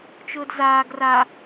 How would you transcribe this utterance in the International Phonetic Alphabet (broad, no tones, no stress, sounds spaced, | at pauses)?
t͡ʃ ʊː d z aː ɡ r a